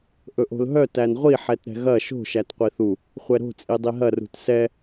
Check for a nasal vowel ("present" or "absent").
absent